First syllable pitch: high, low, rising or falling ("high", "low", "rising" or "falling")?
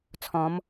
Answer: rising